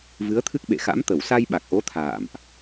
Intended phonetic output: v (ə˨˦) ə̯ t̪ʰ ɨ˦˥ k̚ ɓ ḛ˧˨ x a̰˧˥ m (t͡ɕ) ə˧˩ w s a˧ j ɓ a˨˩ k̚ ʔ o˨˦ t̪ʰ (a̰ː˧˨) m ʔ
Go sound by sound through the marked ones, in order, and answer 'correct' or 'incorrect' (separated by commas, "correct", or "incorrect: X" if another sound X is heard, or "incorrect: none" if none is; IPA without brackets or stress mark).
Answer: incorrect: ɨ˨˦, incorrect: t̪, correct